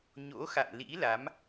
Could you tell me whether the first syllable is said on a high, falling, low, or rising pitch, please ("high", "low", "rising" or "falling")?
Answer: rising